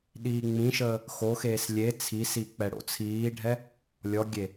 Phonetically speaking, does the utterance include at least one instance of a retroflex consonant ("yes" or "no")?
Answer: yes